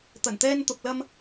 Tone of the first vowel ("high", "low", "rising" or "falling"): low